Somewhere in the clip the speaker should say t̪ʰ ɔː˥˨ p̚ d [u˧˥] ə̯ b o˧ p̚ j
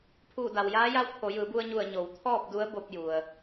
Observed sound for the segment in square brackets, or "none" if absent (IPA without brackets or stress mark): u˧˥